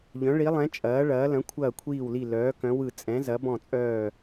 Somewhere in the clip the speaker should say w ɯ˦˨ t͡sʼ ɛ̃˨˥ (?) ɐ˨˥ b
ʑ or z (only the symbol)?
z